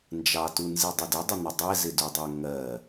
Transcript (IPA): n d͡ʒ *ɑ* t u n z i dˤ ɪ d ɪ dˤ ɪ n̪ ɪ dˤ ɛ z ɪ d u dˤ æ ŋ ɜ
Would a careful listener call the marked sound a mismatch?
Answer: no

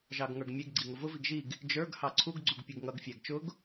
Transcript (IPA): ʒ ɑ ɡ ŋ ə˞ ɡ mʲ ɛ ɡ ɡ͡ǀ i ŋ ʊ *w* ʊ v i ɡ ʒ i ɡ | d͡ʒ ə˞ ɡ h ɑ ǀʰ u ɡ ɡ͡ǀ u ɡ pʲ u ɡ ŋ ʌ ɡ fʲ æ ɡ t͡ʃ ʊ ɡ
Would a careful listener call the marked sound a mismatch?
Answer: yes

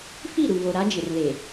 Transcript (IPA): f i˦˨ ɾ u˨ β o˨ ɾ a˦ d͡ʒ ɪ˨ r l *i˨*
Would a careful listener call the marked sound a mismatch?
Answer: yes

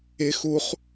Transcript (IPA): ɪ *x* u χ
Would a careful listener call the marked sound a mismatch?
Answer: no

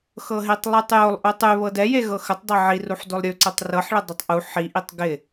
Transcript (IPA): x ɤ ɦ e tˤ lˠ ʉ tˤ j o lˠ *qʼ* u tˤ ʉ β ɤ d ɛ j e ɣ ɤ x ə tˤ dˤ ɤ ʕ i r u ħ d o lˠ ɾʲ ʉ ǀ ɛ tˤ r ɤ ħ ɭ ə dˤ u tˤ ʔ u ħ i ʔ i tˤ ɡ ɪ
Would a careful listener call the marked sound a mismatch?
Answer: yes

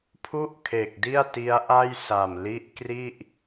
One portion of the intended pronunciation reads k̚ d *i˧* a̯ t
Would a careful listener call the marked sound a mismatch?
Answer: yes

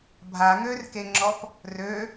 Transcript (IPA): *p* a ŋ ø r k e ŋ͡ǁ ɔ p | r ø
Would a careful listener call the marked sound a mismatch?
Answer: yes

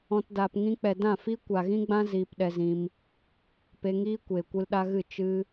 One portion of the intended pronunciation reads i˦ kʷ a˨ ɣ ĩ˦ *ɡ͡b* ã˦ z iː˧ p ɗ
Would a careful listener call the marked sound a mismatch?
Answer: no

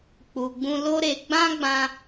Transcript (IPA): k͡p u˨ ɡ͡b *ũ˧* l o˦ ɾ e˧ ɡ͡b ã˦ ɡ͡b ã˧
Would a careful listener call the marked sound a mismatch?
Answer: no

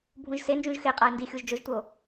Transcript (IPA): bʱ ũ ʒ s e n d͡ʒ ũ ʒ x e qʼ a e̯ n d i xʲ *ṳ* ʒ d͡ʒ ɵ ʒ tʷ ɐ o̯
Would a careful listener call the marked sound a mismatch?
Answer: yes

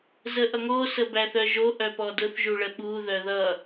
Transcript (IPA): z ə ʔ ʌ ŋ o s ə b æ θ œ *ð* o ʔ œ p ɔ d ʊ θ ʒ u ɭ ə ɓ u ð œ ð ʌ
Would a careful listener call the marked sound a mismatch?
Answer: yes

